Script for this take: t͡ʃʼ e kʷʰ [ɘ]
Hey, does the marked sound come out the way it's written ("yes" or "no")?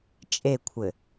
yes